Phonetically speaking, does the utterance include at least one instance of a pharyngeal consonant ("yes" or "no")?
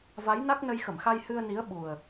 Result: no